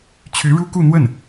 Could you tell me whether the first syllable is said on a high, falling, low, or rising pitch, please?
rising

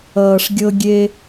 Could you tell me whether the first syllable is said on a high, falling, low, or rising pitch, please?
low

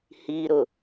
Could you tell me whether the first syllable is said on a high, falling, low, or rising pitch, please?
low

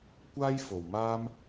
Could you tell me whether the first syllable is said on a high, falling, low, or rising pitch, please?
high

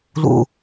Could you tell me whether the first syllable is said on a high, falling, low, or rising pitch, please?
low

